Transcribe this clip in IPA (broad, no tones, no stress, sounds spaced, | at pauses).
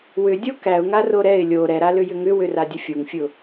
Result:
w ʏ dʲ o k æ ʊ̯ ŋ a r o ɾ ɛ ɪ̯ lʲ o ɾ ɛ ɾ a l ʏ j ʏ ŋ ʏ w ʏ r a dʲ ə fʲ o ŋ fʲ ʊ